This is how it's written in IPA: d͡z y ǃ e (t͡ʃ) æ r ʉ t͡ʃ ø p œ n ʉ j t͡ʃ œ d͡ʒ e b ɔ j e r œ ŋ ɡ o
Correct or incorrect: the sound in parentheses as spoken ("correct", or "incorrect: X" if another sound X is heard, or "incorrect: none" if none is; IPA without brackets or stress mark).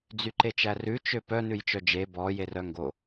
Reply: correct